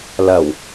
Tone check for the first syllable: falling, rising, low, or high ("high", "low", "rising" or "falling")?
low